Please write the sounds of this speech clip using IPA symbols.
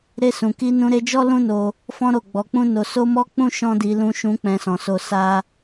ɾ e˧ s ũ˨ k i˧ n ũ˧ ɾ e˧ d͡ʒ ɔ˦ l ũ˦ n o˧ | f ɔ̃˦ ɾ o˦˨ ɡ͡b ɔ˧ k͡p ũ˦ n o˧ s o˦ m ɔ˦ k͡p ũ˦ ʃ ɔ̃˦ d i˧ l ũ˧ ʃ ũ˧ k͡p ɛ̃˧ s ɔ̃˨ s o˧ s a˦

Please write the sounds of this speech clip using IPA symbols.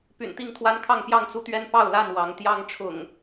p y̰˨˩ n t̪ i˥˨ ŋ t̪ʰ w a˦ n kʰ ɑ˥˨ ŋ p j ɑ˥˨ ŋ t͡s u˦ t̪ ɥ ɛ˦ n p ɑ˥˨ ʊ̯ l a˥˨ n w ɑ˨˦ ŋ t̪ j ɑ˦ ŋ ʈ͡ʂʰ ʊ̰˨˩ ŋ

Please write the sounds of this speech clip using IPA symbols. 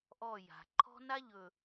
ʔ ɔ˦˨ j a̤˨ ǃʰ ɔ̤˦ n a˦ ʎ ɵ˨

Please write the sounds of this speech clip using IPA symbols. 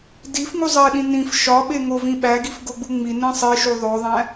d i f ŋ u zˤ e ɗ ĩ n ĩ f ʃ ɒ ɓ e ŋ o v ĩ ɓ æ ɡ i f ɡ o ɡ͡b u ŋ͡m i n ẽ sˤ e ʃ u ðˤ o ðˤ æ̃

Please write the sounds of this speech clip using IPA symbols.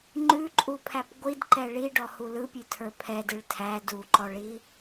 ŋ͡ǃ ʉ ǃʼ u pʰ æ p ɡʷ i d ǃ ɛ ɭ i ɖ ɔ h u l ɯ pʲ ʉ tʰ ə˞ pʰ ɛ d ɯ ɭ tʰ æ d u ǃ ɔ ɭ i

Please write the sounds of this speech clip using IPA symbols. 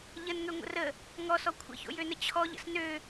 ʎ ə n ŋ ø ŋʷ ə̰ r ə | ŋ ɔ s ɔ kʷʰ ə̰ ç o̰ j ø n ə t͡ɕʰ ɔ ʎ ə̰ s n ø

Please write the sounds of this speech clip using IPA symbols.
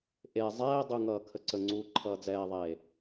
ʔ e zˤ ɛː dˤ u ŋ ʌː kʰ ə ǀ ə ŋ͡ǀ uː ǃʰ ʌː d͡z ɛː ðˤ eː

